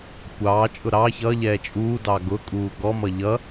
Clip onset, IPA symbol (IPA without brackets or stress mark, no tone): kʷ